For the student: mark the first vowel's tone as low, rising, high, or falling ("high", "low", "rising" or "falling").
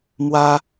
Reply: high